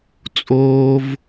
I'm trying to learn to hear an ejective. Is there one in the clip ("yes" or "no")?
yes